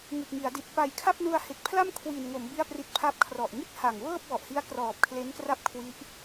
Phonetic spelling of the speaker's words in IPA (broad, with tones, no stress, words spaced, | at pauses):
ŋɯ˨˩k̚ŋi˩˦a̯di˨˩t̚ pa˨˩jkʰa˥˩p̚nu˧a̯ he˨˩k̚pʰla˥˩m kʰwi˨˩nŋo˩˦m bi˥˩a̯pri˦˥t̚pʰa˥˩p̚ kʰrɔ˨˩ʔŋi˥˩t̚ha˨˩ŋ wɤː˥˩p̚wɔ˨˩ʔhi˦˥a̯ krɔː˨˩p̚kʰle˦˥n kra˥˩p̚kʰwi˦˥ʔ